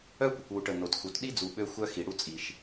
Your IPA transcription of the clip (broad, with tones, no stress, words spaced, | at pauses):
œ˦kʷə˨kʷwu˨ʈə˨ no˨txu˨t ɗi˦d͡zu˨ ɓø˦xʷœ˦xi˨ ɽu˦t͡sʼi˨ʃ